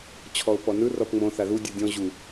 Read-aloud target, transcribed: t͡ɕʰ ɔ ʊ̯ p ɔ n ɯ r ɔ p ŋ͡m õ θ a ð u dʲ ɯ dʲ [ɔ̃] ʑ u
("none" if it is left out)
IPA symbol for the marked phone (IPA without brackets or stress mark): ɔ̃